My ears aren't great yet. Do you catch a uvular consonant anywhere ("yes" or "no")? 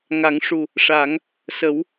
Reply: no